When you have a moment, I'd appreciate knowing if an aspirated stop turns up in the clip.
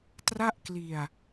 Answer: no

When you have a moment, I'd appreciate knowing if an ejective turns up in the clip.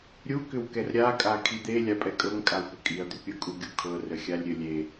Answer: yes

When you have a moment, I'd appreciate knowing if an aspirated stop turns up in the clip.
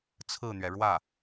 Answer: yes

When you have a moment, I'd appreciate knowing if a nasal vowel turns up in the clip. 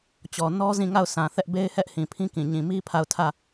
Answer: yes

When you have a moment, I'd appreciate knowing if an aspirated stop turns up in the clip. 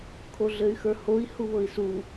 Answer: yes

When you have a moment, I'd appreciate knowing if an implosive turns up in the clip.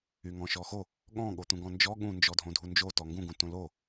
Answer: yes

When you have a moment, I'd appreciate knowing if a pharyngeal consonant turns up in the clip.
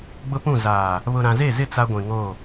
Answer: no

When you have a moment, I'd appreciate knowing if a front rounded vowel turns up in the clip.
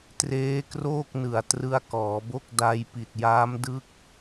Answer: no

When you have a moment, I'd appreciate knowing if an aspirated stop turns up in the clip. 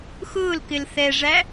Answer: no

